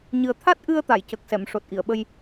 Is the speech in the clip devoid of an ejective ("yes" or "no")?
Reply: yes